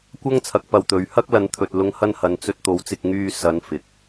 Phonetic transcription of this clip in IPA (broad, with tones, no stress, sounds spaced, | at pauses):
kʷ ɐ˥ ŋ t͡sʰ ɐ˨ k̚ p ɐ˨ w t̪ ɵ˨ ɥ h ɐ˥ k̚ l ɐ˨˥ n t̪ʰ ɵ˨ t̚ l ʊ˧ ŋ h ɐ˥ n h ɐ˨˧ n t͡s ɵ˧ t̚ t̪ o˨˥ w t͡s ɪ˧ k̚ ŋ yː˧ s ɐ˨˧ n f ɪ˨ k̚